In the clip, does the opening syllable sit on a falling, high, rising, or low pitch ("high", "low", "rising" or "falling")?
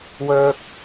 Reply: high